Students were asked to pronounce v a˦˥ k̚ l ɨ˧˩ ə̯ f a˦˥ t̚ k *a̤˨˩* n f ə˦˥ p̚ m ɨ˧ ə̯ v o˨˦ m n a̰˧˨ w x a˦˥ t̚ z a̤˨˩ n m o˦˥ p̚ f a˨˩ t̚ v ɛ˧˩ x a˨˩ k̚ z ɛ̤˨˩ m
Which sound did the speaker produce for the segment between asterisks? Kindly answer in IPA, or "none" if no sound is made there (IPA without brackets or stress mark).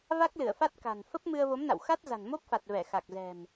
a̤˨˩